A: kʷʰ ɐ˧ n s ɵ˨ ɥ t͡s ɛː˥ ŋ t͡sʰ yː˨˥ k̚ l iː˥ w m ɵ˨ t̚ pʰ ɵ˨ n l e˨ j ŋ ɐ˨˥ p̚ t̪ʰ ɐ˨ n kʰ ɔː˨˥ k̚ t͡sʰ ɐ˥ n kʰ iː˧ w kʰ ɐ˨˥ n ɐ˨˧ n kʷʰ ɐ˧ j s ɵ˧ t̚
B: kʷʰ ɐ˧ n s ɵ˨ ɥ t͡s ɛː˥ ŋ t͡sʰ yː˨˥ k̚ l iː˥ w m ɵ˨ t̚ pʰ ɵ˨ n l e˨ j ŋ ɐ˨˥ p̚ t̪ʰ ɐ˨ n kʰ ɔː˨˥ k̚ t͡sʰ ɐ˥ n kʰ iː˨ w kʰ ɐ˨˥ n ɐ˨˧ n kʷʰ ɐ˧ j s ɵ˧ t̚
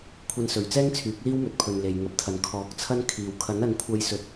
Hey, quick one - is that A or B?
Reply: B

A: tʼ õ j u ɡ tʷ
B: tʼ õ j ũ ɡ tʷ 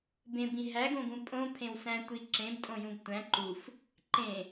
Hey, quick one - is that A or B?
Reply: B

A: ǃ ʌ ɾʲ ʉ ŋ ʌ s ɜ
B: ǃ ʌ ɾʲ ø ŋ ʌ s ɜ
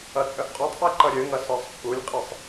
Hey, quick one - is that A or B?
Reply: B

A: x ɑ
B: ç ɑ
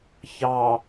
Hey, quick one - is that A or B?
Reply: B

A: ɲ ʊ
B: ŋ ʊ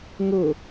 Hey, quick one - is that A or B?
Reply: B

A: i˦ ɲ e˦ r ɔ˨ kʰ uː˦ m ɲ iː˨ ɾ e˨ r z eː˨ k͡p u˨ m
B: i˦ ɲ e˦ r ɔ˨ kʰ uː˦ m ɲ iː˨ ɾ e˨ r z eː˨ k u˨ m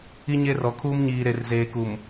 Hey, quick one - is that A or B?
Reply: B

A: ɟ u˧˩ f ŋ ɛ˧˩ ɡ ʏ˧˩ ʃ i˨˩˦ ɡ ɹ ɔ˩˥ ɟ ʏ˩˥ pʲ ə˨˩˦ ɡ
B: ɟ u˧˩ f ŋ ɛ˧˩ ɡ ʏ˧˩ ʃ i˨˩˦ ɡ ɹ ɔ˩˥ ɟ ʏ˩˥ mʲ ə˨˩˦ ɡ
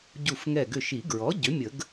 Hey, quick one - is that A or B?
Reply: B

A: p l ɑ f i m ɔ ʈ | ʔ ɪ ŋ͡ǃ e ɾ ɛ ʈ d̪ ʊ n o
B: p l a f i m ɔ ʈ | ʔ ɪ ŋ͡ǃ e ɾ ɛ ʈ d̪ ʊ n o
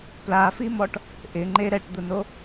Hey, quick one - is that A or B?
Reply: B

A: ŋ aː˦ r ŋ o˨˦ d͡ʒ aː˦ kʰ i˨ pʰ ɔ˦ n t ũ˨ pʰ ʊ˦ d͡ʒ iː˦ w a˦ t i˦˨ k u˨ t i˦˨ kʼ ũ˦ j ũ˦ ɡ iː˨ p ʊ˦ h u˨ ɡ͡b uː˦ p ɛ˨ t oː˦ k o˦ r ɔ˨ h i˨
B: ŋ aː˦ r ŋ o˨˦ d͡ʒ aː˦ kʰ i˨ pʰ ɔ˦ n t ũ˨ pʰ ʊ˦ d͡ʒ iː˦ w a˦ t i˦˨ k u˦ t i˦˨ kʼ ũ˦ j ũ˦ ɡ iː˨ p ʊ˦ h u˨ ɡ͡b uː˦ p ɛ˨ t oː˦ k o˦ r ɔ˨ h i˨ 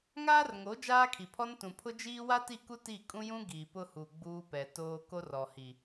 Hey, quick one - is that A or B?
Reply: B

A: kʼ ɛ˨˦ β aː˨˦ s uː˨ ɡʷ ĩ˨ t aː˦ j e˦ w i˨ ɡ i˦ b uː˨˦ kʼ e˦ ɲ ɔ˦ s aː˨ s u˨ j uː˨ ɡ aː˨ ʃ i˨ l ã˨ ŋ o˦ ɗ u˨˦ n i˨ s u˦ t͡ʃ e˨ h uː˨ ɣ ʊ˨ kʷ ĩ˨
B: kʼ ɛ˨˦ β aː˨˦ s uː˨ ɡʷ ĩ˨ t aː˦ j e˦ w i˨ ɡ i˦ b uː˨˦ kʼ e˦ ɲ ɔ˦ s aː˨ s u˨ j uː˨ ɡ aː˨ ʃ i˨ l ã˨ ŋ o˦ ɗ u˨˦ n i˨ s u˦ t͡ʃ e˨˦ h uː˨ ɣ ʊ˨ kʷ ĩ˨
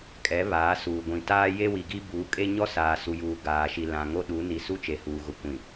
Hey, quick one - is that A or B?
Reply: A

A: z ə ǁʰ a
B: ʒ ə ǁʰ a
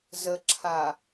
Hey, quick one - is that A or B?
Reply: A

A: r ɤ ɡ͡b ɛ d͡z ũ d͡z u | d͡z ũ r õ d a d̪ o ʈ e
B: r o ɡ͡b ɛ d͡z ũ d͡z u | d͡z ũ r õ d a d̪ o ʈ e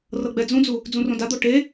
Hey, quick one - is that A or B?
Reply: A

